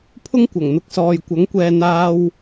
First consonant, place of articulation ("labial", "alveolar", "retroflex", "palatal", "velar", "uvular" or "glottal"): labial